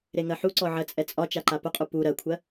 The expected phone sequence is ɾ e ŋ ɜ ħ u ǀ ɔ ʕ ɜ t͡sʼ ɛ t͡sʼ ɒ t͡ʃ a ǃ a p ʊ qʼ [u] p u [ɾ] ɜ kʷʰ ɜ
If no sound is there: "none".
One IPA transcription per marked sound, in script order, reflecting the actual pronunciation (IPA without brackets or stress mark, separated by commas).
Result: u, ɾ